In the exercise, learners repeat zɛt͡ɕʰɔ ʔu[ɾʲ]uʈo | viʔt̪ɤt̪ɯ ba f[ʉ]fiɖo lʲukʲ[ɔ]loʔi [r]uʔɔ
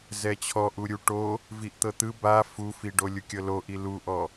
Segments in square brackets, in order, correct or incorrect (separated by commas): correct, incorrect, incorrect, incorrect